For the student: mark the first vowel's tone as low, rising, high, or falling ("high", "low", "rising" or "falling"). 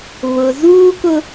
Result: low